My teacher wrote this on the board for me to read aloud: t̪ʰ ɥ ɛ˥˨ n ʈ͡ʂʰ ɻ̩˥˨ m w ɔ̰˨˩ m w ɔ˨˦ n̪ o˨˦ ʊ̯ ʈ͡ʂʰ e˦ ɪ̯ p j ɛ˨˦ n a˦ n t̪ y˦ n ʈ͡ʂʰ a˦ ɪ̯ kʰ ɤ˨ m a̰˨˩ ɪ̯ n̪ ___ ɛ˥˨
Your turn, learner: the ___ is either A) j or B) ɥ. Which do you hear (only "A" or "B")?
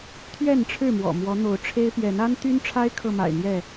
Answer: A